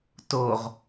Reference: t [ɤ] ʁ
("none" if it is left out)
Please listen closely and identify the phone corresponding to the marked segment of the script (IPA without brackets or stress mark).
o